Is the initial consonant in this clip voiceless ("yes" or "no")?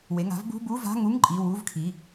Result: no